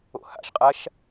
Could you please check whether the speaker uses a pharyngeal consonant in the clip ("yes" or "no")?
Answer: no